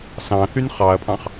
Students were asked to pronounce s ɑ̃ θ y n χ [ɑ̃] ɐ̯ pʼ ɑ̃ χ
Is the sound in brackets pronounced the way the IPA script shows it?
no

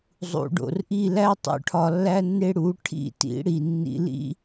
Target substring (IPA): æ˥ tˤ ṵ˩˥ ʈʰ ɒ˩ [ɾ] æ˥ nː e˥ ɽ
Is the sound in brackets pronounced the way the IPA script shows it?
no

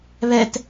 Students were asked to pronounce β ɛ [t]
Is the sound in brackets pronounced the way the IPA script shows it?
yes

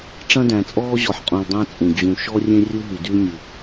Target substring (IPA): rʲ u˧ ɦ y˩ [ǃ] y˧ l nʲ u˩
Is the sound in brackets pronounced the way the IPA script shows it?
no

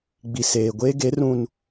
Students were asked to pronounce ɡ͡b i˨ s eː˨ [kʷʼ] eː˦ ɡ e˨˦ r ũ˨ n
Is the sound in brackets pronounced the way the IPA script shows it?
no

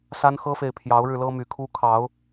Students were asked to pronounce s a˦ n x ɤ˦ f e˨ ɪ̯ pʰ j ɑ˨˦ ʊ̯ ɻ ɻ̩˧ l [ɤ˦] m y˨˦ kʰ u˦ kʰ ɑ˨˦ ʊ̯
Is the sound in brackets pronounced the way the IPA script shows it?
yes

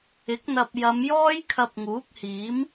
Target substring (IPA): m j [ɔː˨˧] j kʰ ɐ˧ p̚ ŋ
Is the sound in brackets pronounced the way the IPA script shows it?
no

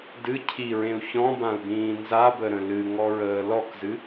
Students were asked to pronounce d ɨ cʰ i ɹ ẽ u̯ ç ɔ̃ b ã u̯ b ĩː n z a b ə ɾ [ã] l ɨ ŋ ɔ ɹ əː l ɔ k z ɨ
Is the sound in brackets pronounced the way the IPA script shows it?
no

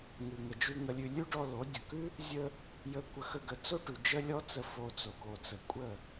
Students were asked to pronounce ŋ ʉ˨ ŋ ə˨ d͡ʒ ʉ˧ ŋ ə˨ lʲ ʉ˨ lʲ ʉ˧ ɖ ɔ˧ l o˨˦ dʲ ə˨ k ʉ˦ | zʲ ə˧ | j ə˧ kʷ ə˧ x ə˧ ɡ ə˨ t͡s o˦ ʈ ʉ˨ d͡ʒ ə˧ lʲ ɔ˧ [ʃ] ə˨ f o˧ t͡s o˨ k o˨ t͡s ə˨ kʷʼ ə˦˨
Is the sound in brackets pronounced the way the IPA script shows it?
no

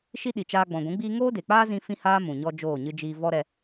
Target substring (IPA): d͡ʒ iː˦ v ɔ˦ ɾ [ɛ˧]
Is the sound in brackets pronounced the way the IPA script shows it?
yes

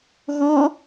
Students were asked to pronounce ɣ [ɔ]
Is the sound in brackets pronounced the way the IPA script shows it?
yes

